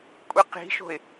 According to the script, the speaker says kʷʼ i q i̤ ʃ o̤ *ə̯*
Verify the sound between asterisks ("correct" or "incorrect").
incorrect